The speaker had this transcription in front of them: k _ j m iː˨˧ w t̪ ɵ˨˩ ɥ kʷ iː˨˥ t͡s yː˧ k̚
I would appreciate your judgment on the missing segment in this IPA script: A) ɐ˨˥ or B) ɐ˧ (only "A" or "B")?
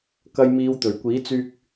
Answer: B